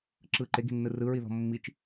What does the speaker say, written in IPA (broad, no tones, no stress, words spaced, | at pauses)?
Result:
ǁɯ ǃeɡi̤nːɯ rɯɹiðɔ̤ mːit͡ʃ